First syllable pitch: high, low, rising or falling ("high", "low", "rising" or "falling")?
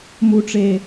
low